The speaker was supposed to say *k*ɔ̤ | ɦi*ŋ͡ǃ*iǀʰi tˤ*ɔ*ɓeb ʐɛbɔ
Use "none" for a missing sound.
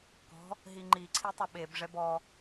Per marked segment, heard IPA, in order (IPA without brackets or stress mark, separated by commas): k, ŋ͡ǃ, ʊ